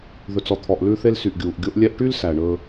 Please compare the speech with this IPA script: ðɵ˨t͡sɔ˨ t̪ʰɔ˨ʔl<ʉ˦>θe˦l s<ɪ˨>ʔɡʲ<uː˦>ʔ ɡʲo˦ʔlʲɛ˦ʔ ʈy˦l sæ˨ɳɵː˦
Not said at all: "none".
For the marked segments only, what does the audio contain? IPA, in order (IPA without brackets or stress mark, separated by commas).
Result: ʉ˦, y˨, uː˨